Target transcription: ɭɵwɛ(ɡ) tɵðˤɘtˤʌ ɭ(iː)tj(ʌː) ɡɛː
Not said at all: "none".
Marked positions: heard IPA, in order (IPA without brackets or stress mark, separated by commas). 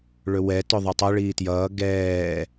none, iː, ʌː